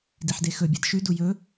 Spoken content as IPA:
d i ħ d e x ɵ bʲ a d ʃ ʉ d u j ɵ

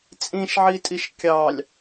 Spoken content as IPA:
t͡sʼ ĩ ʃ ʕ i tʼ i ʃ kʲ ɑ lʲ

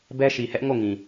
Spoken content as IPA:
b ɛ˦ ʃ i˨ h ɛ˦ ʔ ŋ o˦˨ ŋ ĩ˨

